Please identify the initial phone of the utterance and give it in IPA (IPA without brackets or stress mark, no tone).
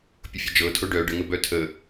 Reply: pʲ